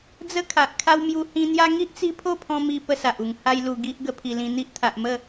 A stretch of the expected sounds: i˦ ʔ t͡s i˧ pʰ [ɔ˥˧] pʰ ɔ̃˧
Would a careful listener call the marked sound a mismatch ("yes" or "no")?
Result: yes